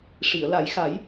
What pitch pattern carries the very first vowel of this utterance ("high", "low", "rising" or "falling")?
low